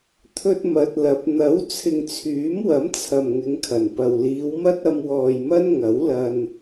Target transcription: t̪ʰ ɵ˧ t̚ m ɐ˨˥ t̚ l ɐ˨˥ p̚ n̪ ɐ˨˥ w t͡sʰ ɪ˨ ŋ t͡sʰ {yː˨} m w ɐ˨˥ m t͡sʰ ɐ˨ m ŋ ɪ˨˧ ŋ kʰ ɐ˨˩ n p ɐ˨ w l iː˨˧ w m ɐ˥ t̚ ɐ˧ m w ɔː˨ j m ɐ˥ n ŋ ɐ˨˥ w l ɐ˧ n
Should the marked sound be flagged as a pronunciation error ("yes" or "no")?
yes